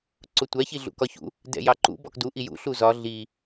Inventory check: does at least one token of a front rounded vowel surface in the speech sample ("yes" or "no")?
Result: no